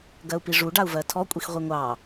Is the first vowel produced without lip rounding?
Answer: yes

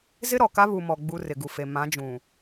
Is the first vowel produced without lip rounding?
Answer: yes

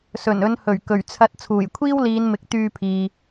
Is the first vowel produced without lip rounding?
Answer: no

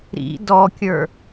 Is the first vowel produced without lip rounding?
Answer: yes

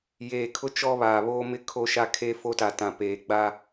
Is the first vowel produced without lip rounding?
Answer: yes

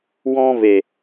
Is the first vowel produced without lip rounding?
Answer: no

